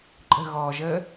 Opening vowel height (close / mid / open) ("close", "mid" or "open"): mid